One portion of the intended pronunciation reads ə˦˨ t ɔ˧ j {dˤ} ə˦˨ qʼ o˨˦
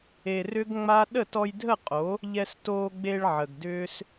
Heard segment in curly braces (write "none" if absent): dʱ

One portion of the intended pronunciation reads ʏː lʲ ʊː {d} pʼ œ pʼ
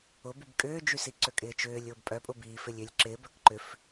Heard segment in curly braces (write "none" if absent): b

